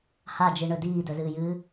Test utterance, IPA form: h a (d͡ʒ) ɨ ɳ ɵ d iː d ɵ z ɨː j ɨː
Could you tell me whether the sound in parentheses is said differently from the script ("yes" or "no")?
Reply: no